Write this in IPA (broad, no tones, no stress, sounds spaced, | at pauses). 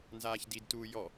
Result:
n z aː ç d i d t uː j ɔ